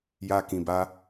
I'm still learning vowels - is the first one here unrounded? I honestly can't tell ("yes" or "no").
yes